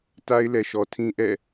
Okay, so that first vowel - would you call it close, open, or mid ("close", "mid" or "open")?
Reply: open